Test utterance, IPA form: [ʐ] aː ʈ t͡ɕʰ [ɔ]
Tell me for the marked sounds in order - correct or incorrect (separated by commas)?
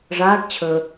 correct, incorrect